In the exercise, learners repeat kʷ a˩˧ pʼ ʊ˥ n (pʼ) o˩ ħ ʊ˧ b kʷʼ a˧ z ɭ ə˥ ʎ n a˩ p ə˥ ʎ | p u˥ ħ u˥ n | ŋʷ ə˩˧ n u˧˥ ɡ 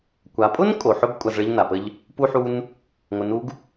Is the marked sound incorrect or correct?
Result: incorrect: kʼ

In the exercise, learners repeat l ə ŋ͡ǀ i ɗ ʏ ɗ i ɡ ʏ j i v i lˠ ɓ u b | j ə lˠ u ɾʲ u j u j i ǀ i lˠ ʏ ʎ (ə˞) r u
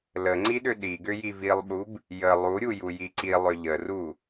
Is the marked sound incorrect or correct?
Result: incorrect: ə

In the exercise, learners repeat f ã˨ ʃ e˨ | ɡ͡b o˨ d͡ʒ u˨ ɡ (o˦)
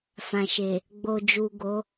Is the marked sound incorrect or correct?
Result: incorrect: o˨˦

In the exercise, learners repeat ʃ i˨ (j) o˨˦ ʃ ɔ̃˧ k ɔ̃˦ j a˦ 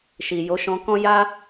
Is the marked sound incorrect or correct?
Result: correct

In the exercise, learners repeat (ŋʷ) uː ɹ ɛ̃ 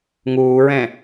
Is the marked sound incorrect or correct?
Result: incorrect: ŋ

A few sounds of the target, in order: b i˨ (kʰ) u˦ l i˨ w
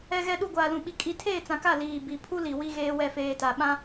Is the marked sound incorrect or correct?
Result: incorrect: pʰ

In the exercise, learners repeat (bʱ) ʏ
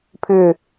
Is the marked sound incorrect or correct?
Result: incorrect: pʰ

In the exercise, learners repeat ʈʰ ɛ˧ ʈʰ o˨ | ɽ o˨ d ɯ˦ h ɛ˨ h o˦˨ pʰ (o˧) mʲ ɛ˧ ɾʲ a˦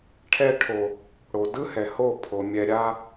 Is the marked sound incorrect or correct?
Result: incorrect: o˨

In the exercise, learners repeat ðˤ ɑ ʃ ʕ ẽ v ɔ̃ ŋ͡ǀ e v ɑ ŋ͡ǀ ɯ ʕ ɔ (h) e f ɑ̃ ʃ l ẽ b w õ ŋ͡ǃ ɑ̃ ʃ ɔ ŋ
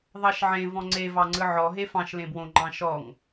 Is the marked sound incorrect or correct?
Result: incorrect: ɦ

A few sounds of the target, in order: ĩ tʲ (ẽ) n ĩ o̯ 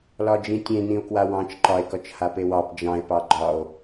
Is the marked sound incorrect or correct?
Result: correct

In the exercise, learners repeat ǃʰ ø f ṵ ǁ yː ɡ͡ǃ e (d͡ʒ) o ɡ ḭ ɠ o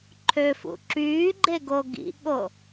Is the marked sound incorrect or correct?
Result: incorrect: ɡ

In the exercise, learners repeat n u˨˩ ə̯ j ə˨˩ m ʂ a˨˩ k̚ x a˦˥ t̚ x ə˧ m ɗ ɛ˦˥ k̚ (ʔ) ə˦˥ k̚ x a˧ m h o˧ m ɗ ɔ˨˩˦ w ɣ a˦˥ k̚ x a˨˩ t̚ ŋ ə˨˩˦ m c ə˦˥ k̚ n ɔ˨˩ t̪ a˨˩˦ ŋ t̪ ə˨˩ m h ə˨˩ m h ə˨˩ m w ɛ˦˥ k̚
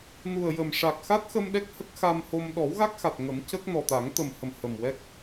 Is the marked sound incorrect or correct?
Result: incorrect: h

